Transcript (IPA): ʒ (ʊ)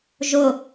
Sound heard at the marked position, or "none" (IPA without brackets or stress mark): ʊ